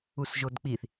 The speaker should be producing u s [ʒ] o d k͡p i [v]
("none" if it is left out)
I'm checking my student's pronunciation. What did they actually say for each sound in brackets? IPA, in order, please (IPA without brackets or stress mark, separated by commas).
ʒ, θ